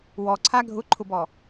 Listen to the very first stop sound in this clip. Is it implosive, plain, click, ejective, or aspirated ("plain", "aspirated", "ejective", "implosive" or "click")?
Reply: click